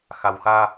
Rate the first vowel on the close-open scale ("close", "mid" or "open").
open